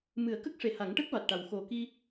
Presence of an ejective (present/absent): absent